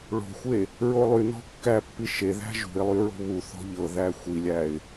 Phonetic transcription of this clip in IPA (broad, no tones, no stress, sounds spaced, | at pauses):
ɭ o̤ xʷ e | ɹ o lˠ y n ɔ̤ kː æ pː i ʃ e ð æ̤ ʒ ṳ ɪ̯ lˠ y ɹ o̤ β u θ ɔ̤ ʎ ɤ ð æ xʷ i lʲ æ ɪ̯